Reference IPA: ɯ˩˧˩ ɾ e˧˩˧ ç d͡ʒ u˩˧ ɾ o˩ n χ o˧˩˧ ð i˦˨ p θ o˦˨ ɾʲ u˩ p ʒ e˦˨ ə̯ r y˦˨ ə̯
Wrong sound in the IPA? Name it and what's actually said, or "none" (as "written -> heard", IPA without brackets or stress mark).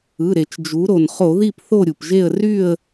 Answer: ç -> t͡ʃ